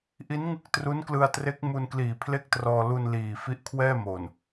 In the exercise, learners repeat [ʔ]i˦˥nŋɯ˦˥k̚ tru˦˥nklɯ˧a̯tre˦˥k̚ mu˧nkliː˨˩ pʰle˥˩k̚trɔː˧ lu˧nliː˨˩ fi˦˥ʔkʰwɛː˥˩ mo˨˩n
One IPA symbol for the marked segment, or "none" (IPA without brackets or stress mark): ʔ